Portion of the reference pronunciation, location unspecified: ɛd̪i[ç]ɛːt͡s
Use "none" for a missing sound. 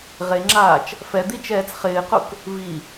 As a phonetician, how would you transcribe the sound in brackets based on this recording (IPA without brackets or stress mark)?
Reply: t͡ʃ